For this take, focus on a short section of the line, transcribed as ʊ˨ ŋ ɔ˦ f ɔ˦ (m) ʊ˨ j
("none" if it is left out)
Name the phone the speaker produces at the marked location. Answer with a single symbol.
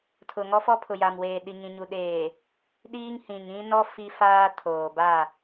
pʰ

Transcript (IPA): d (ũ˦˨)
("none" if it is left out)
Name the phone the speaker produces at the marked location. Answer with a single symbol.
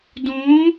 ũ˨˦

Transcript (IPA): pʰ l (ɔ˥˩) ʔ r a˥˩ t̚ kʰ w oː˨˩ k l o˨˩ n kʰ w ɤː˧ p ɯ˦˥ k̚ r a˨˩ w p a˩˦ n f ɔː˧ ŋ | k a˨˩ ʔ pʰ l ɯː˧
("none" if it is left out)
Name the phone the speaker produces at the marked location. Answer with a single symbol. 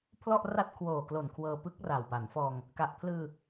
ɔ˥˩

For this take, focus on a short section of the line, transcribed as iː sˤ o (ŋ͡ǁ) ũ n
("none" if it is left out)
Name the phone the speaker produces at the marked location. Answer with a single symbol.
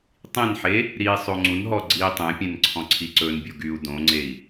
ŋ͡ǀ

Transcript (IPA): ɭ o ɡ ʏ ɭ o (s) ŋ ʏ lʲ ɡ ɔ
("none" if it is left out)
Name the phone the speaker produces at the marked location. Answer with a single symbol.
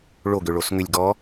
s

